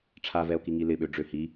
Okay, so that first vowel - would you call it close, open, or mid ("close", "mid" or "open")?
open